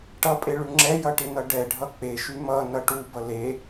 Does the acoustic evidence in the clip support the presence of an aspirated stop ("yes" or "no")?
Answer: no